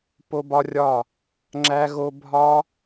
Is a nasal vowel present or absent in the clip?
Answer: absent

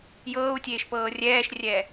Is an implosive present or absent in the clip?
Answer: absent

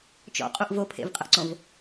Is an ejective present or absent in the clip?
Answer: present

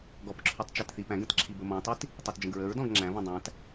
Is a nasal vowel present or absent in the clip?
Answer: present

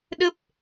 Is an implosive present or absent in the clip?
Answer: present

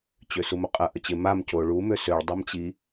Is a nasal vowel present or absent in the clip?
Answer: absent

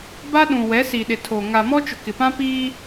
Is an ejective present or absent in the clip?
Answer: absent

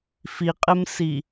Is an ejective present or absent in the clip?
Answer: present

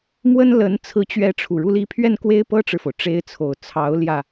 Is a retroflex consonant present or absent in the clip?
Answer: present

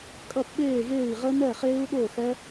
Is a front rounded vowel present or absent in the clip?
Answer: absent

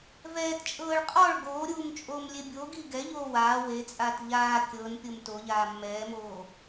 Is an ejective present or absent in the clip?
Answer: present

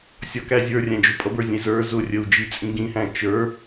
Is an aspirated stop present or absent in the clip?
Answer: absent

